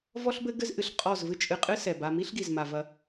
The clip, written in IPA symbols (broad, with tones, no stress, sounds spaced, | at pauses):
v ɔ˦ ɬ b ɘ˦ ɡ ɘ˦ z ʔ ɨ˨ ɬ qʼ ɔ˦˨ z v ɨ˦ t͡ʃʼ ɨ˧ qʼ ɨ˦ s ɛ˨ b a˧ m i˦ ɬ ɡ i˨ z m a˨ v ɐ˧